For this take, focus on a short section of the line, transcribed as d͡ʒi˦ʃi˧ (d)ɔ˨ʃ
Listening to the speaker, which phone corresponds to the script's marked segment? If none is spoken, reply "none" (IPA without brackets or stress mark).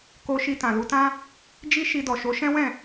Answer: d